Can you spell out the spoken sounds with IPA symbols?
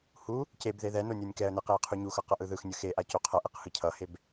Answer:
h u | c e b ð e ð ɛ n o nʲ o nʲ k ɛ ə̯ n e q e ə̯ qʰ u ɲ u x ʌ q ʌ ʔ ɯ ð ɯ x nʲ ɯ x e ʔ a c o qʰ ʌ ʔ e q h ɯ cʰ ʌ h e b

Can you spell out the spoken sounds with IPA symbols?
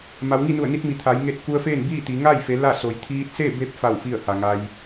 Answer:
m a˩˧ w ŋ i˥˨ n u˧˩ ə̯ n i˧ t̚ m i˩˧ t̪ʰ a˩˧ j ŋ e˧ t̚ k u˧ ə̯ f eː˥˨ n b iː˥˨ t̪ i˩˧ ŋ a˥˨ j f e˩˧ l a˥˨ s o˩ j t̪ʰ iː˧ t̚ s e˥˨ b e˧˥ p̚ f a˥˨ w f i˥˨ ə̯ h a˩ ŋ a˧ j

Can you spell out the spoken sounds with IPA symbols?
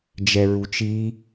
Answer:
d͡ʒ ɛ ɹ u t͡ʃ i

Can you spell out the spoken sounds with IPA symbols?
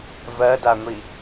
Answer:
v ɜ d a ŋʷ i

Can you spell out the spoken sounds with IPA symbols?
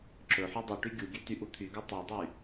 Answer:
ǁ ɵ ħ u dˤ ɵ ʈ y ɡʲ u ɡʲ ø t y ʔ u t̪ʰ y ɡ u tˤ ø dˤ y

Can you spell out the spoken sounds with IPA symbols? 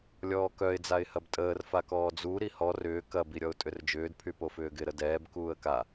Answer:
lʲ ɔː k œ ɪ̯ d͡z a ɪ̯ h ɐ b tʼ əː r f a k ɔː d͡z u ɾ i h ɔ r ʏː k ɐ b i ɾʲ ɔ ʊ̯ tʼ ʏ r d͡ʒ ʏː d pʰ y p o f ʏː ɡ ɪ ɾ ə d ɛː b k uː ə̯ k a

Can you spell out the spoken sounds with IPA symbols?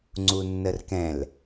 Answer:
ŋ͡ǀ u nː ə r k ɛ̃ l

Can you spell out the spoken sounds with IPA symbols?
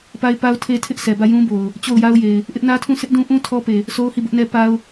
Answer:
p a˦ ɪ̯ p a˦ ʊ̯ tʰ e˦ tʰ ɪ˦ ʔ sʰ ɛ˨ b ä˦˨ j ũ˦ b o˨ ʊ̯ | t͡ɕ o˦˨ ʊ̯ j a˦ ʊ̯ j e˨ ɪ̯ | ʔ ɪ˦ ʔ n ä˦ tʰ ũ˦˨ sʰ ɪ˦ ʔ d ũ˦ ʔ ũ˦ tʰ ɔ˦ p e˨ | sʰ o˦ ʊ̯ h i˦˨ b ʊ˦ ʔ n ɛ˦ p a˦ ʊ̯

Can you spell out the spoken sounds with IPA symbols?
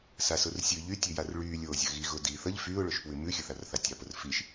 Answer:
s a s ʊ r sʲ ʉ ʎ y tʲ ʉ j a r ɭ yː lʲ oː zʲ ə ɣ i ɣ ʊ d i θ ə ʎ f yː ʊ̯ ɭ ʊ ʃ p w ʉ m ʉ xʲ ə θ a r θ a tʲ ɑ p ʊ r f i ʃ

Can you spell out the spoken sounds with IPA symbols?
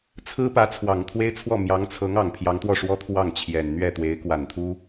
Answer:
t͡sʰ ɹ̩˥ p ä˧˥ t͡sʰ w ɑ˨˩ ŋ t̪ʰ w e˥ ɪ̯ t͡sʰ w ɔ˥˩ m j ɑ˧˥ ŋ t͡sʰ ɤ˧˥ ŋ ɑ˨˩ ŋ pʰ j ɑ˧˥ ŋ t̪ w ɔ˥˩ ʂ w ɔ˥ t̪ʰ w ɑ˥˩ ŋ t͡ɕʰ j ɛ˨˩ n n̪ ɥ ɛ˥˩ t̪ w e˧˥ ɪ̯ k w a˨˩ n t̪ʰ u˥

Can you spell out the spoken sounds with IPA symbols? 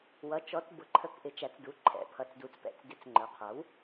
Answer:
w ʌ˩˥ t͡ʃ ɔ˩˥ t b ʊ˩˥ ǃʰ ə˩˥ k ʔ ɪ˩˧ t͡ʃ æ˩˧ t͡s d u˩˧ ǃʰ ɛ̰˩˥ pʰ ʌ˩˧ t͡s d u˩˧ t͡s p ɛ̰˩˧ t͡s d ɪ˩˥ t͡s ŋ͡ǃ ə˞˩˧ qʰ ʌ˩˥ w

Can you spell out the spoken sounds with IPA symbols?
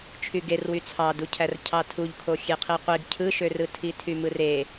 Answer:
t͡ʃʰ y ɡ e r w y t͡sʰ ɑ d u cʰ æ r cʰ ɑ tʰ u ʎ kʰ o xʲ e qʰ i qʷ i ɡ cʰ ɯ ʃ ø r ɯ tʰ i tʰ y m ɯ r e

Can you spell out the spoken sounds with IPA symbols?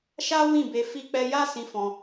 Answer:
ʃ a˦ w ĩ˦˨ b e˧ f i˦ k͡p ɛ˦ j a˦ s ĩ˧ f ɔ̃˧

